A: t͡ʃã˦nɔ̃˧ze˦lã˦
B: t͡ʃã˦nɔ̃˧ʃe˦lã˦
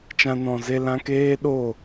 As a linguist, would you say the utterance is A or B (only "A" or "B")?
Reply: A